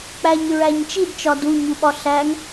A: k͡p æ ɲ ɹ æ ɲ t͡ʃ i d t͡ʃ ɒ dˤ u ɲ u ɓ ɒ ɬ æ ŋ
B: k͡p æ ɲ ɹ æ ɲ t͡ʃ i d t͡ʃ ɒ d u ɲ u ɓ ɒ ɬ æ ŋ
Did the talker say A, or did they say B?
B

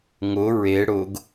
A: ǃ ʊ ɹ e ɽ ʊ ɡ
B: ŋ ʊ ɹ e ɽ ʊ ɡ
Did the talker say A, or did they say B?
B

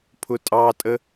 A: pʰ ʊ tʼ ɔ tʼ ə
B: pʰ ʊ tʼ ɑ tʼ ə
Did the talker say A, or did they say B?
B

